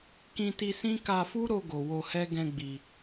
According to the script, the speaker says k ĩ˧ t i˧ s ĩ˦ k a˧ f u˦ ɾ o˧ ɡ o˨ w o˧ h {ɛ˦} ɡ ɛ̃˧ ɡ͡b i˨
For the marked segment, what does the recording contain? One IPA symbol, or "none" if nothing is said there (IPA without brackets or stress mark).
ɛ˦